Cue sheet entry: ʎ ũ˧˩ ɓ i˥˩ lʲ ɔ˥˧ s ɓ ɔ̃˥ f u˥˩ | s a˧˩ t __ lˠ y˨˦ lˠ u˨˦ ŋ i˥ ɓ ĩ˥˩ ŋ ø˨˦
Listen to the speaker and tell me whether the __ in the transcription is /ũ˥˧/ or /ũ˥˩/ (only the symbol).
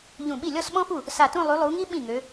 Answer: ũ˥˧